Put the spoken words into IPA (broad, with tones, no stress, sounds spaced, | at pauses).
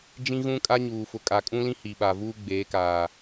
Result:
d͡ʒ ĩ˦ ɣ ũ˦ kʼ a˦ ɲ uː˨ f ʊ˨ kʼ a˨ kʼ ũ˦ l ĩ˦ h i˨ ɓ a˨ v uː˦ ɡ͡b eː˨˦ k aː˨